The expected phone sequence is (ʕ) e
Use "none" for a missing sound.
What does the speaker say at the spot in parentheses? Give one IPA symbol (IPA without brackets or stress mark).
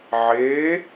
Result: ʕ